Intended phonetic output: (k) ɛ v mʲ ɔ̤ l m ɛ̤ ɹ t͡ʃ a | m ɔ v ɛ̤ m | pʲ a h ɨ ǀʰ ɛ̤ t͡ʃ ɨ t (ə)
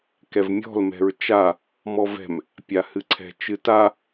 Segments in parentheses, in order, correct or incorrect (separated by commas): correct, incorrect